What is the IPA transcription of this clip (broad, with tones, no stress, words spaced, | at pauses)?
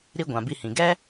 ɾi˧ ɡʷã˨bi˧hĩ˨ ɡɛ˦